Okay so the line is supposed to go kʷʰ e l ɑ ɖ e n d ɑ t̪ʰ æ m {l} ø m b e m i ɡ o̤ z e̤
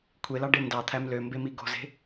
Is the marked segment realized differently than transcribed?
no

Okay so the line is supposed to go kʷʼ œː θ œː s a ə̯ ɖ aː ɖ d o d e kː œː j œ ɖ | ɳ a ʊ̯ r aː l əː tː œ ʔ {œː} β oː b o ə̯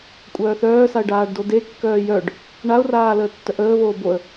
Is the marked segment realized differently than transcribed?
yes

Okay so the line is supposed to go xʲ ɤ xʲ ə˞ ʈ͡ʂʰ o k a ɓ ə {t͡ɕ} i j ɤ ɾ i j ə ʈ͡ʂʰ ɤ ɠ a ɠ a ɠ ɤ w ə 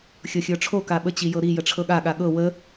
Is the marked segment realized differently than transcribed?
no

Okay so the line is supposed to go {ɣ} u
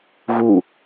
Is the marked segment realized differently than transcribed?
no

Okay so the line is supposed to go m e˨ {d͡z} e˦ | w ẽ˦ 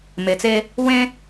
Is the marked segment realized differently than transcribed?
yes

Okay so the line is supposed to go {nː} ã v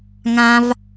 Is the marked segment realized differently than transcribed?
yes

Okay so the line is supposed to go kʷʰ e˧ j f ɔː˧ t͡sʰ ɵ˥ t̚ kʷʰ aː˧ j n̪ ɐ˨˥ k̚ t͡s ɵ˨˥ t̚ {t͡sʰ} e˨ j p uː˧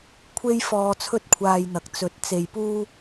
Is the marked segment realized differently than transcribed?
yes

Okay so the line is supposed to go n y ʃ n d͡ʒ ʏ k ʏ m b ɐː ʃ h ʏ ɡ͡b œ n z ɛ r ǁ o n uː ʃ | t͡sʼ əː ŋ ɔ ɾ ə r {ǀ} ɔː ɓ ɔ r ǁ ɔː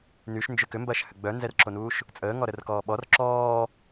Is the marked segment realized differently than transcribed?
yes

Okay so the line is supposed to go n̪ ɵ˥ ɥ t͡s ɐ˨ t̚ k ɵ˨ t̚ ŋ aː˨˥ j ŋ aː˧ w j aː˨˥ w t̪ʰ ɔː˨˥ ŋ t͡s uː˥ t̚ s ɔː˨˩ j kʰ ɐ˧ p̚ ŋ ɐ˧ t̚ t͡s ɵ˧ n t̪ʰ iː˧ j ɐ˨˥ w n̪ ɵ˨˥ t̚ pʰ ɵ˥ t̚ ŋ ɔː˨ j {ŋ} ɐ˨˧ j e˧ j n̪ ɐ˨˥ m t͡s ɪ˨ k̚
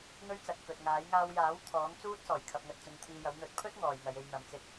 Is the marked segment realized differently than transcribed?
no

